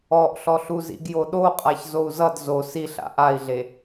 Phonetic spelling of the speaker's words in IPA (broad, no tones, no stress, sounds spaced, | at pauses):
ɔ ʔ ɬ ɔ ɬ u z ḭ ɡ j o ɗ o qʼ a ç z o u̯ z ʌ d z o s i ɬ a̰ ʔ a i̯ ɮ e